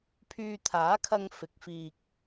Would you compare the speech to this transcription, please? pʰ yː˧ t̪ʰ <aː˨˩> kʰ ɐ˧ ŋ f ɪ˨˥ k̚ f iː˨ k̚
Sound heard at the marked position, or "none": aː˨˥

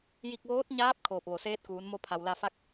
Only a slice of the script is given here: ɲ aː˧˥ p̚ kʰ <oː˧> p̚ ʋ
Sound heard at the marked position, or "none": oː˧˩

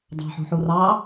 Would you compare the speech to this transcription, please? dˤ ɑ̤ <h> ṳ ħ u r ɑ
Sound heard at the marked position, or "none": ħ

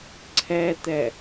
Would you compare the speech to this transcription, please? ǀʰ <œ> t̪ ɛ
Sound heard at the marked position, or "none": ɛ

